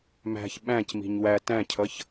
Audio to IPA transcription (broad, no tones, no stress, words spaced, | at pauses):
mæ̤ç ɓæ̃cmi̤ɲ wæ tæ̃cʰʌç